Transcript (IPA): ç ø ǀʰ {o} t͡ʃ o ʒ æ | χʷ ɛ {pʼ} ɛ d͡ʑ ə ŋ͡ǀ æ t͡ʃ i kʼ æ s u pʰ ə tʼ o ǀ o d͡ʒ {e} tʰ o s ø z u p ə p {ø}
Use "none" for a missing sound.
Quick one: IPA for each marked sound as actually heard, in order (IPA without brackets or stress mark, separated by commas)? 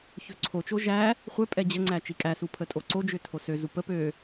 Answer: o, pʼ, ø, ø